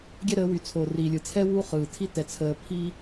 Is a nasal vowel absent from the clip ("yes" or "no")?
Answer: yes